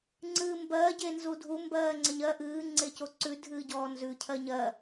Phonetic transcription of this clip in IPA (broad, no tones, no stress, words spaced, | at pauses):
ŋ͡ǀɨːmbɜ ɟenzudʱu mbɜːŋ͡ǀəɲɜ ʔɨː ŋ͡ǀecoǀʉ dʱɨːɟɔːnzʉ cʰɜɲɜ